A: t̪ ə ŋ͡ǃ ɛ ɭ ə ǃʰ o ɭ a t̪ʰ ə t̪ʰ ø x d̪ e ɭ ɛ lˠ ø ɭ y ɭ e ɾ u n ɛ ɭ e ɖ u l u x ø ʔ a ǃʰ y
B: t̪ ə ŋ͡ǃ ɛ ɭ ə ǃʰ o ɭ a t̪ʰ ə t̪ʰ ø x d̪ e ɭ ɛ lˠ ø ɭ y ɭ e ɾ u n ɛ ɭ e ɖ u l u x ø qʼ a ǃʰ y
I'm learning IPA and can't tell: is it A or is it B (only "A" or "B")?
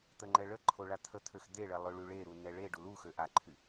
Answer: A